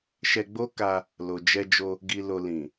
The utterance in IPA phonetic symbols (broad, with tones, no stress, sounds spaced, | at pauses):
ʃ ɛ˧ ɡ͡b o˦ k a˧ | l o˨ d͡ʒ ɛ˧ d͡ʒ o˧ | ɡ i˨ l o˨ l ĩ˨